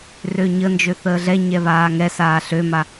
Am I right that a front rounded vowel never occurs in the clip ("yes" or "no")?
no